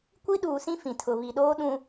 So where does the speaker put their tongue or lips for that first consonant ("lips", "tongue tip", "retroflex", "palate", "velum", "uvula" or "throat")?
velum